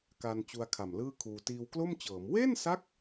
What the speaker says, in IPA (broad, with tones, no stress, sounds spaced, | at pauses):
k a˧ n t͡ɕ u˧ a̯ kʰ a˨˩ m l ɯː˥˩ kʰ uː˧ t iː˧ w k l o˥˩ m t͡ɕ ɤː˩˦ m w e˥˩ n s a˦˥ k̚